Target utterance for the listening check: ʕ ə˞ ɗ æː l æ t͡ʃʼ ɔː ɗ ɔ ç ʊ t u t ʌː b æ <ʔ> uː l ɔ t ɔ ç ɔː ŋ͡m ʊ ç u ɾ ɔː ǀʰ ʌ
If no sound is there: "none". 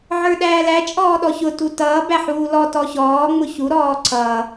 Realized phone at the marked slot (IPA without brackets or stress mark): ħ